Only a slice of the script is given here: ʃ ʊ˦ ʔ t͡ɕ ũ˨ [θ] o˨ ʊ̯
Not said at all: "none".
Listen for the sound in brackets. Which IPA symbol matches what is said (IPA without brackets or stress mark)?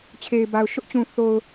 θ